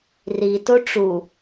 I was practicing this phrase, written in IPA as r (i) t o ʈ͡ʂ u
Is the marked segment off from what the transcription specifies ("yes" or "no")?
no